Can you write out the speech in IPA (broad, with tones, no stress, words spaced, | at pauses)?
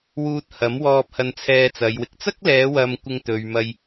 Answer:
wuː˧t̚hɐ˨˥mwɔː˧p̚ hɐ˧nt͡sʰɛː˧t͡sɐ˨˧jwɪ˨k̚ t͡sɐ˥k̚lɛː˨˧wɐ˨mkʷɪ˨ŋ t̪ɵ˨ɥmɐ˧j